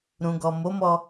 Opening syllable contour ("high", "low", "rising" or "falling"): low